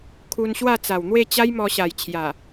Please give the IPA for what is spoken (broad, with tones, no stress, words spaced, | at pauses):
kʰu˧nɕwa˥˧ t͡sa˨˩wn̪we˥˧t͡ɕa˦j mɔ˧ɕa˨˩j t͡ɕʰja˨˩